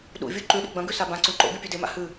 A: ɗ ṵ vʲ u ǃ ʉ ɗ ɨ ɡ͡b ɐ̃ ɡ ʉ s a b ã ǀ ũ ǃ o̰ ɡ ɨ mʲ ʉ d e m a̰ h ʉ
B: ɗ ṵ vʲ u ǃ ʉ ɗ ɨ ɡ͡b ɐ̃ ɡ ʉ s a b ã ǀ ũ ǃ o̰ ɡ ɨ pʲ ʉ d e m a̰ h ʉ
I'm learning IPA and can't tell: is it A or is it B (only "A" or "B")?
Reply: B